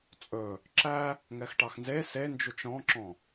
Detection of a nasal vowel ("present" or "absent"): present